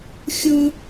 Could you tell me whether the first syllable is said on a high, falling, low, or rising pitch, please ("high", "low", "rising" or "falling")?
high